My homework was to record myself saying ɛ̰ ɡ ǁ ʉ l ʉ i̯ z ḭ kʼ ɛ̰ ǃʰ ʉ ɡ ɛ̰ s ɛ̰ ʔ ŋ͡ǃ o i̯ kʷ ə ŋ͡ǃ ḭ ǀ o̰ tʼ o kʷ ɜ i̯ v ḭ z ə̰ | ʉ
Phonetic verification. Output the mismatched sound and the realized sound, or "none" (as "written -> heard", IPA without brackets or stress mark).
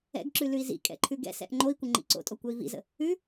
none